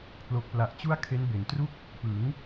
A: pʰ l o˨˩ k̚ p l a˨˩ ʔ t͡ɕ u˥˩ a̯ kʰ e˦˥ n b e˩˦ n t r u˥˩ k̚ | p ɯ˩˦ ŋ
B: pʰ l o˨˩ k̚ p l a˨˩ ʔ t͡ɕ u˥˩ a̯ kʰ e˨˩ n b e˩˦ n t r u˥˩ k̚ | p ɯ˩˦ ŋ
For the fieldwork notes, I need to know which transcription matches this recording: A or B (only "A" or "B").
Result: A